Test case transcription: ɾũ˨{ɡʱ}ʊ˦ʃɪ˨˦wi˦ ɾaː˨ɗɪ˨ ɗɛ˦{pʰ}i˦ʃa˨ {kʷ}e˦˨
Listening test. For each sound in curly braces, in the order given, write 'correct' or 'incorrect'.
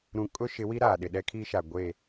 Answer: incorrect: kʼ, incorrect: kʰ, incorrect: ɡʷ

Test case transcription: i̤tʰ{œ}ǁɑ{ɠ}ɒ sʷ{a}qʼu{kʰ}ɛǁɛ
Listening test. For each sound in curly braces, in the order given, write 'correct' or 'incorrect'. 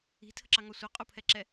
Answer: incorrect: ə, incorrect: ŋ, incorrect: ɐ, incorrect: pʰ

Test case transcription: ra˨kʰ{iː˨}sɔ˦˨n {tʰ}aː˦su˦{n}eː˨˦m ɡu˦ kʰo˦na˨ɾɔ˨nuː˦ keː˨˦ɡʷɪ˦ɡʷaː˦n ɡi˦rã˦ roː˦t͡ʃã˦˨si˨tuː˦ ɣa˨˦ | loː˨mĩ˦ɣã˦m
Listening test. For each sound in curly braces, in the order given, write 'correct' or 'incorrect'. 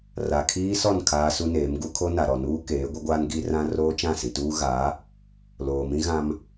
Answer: incorrect: iː˦, incorrect: kʰ, correct

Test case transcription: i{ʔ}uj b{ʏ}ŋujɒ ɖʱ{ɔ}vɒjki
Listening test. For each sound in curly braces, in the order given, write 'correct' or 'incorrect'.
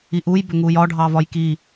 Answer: correct, correct, incorrect: ɑ

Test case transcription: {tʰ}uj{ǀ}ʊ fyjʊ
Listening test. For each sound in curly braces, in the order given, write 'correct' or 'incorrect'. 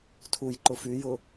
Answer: correct, incorrect: ǃ

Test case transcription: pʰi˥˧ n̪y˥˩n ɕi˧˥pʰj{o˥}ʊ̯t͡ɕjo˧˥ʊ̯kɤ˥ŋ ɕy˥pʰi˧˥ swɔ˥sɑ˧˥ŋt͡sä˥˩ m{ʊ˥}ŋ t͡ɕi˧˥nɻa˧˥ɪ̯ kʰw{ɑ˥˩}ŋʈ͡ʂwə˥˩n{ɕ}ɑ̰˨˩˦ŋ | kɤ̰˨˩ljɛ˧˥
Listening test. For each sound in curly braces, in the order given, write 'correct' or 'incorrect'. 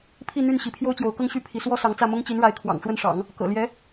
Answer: correct, correct, incorrect: ɑ̰˨˩, incorrect: ʂ

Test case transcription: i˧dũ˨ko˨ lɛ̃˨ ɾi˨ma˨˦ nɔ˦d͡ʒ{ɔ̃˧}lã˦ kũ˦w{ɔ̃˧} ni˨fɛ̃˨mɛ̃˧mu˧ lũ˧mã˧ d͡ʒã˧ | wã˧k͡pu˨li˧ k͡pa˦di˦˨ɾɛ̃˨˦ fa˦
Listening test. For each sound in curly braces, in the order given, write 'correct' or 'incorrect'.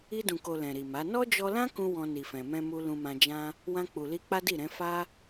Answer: incorrect: ɔ˧, correct

